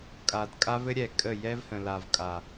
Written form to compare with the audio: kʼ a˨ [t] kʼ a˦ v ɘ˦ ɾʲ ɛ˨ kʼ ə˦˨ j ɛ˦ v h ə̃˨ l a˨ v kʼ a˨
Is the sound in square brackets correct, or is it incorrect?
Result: incorrect